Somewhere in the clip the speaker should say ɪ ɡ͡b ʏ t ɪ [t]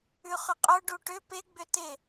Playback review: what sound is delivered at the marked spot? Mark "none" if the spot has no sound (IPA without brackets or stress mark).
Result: none